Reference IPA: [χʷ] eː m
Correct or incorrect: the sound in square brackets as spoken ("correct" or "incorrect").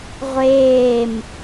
incorrect